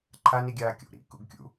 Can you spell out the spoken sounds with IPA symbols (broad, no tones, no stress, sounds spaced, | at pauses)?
ǃʰ a n i ɡʲ aː kʲ o̰ ɾ ḭ k ṵ ɡ kʲ ṵ